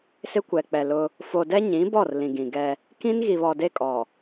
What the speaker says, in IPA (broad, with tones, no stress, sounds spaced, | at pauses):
s ɪ˦ kʷ ɛ˨ k͡p ɛ˨ l ʊ˦ | f o˨ d ɛ˦ ɲ ĩ˨˦ b ɔ˦˨ r l ĩ˨ ɡ ĩ˨ ɡ ɛ˦ | k ĩ˦ n ɣ i˨ β ɔ˨ d e˦ kʼ ɔ˨